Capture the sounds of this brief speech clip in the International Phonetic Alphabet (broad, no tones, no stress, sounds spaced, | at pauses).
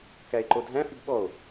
k æ e̯ ǃ o dʱ æ̃ f y b ɓ ɔ o̯